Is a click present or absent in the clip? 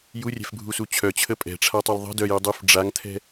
absent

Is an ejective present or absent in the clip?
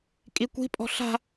present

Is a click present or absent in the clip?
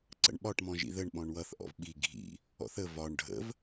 present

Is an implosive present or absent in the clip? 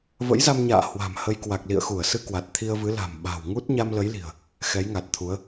present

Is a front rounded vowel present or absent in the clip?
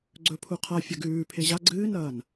absent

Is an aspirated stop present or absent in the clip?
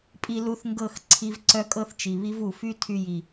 present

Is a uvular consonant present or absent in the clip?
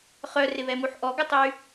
present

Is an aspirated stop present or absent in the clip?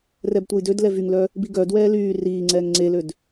absent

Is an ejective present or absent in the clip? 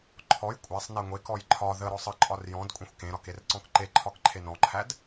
present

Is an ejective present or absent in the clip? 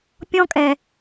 present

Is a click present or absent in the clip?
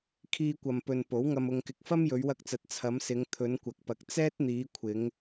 absent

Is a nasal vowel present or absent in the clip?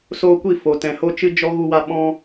present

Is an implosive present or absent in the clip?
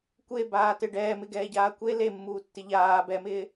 absent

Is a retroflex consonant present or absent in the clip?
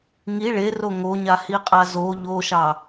present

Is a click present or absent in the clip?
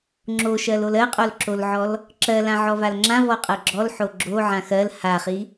present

